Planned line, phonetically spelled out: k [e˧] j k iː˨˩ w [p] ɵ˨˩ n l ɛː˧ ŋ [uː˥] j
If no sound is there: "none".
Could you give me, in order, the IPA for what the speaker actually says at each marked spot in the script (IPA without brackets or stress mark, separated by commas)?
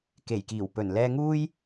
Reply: e˨˩, p, uː˥